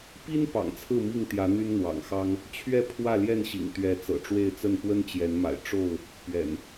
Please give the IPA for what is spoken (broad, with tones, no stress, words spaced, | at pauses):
pi˦n pɑ̰˨˩ŋt͡sʰɹ̩˥˨mi˥˨ŋt̪jä˨˦ n̪y˦nn̪wɑ̰˨˩ŋxɑ˦ŋ | t͡ɕʰɥɛ˥˨pʰwä˥˨ljɛ˥˨nɕḭ˨˩ŋ t̪ɥɛ˨˦ t͡sɤ̰˨˩ʈ͡ʂwe˥˨ɪ̯t͡sə˥˨n pwə˦nt͡ɕjɛ˨˦nma̰˨˩ɪ̯ ʈ͡ʂo˥˨ʊ̯ | pɥɛ̰˨˩n